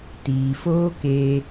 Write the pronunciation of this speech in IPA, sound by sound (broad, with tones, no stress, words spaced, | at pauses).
tiː˨foː˦keː˧